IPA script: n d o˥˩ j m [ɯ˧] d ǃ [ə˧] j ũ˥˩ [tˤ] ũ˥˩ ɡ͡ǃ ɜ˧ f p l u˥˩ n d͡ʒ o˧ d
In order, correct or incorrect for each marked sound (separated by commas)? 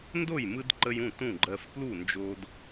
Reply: correct, correct, incorrect